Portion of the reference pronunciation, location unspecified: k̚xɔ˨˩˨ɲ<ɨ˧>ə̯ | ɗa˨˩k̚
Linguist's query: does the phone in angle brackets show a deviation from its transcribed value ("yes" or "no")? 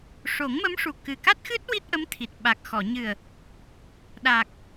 yes